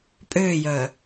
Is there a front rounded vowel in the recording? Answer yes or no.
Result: yes